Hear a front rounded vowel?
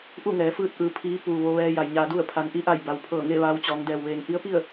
no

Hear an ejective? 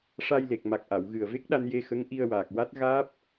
no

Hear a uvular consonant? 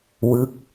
no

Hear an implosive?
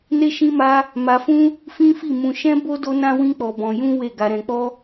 no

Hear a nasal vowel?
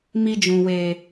yes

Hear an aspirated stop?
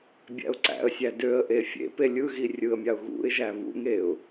no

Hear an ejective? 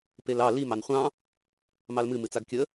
no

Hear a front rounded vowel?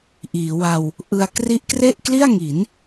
no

